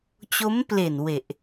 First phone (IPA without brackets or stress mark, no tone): t͡ɕ